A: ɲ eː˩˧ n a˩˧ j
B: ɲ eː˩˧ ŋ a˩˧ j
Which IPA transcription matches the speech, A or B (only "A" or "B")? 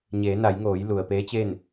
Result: A